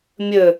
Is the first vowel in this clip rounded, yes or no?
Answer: no